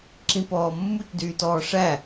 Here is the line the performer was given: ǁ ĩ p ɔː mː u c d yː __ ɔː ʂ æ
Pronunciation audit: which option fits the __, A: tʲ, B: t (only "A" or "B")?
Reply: B